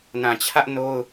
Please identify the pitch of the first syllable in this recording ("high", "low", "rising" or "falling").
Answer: low